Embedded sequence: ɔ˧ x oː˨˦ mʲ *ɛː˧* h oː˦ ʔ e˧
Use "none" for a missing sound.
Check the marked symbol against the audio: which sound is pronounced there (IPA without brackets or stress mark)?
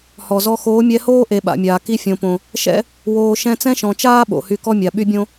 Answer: ɛ˧